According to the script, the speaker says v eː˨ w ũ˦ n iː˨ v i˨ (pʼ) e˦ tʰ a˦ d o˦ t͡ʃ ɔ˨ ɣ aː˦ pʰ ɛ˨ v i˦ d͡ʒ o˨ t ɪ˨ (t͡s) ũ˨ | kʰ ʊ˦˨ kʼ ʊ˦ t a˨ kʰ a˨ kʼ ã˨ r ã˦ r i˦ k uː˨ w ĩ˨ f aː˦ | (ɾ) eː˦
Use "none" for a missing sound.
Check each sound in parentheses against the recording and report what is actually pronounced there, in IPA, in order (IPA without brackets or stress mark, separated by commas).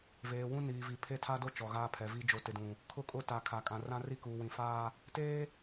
pʰ, d, t